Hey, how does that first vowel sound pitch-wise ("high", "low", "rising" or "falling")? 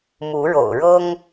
rising